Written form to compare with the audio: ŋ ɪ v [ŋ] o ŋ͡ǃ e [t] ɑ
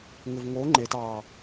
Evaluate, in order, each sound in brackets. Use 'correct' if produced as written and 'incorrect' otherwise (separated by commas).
correct, correct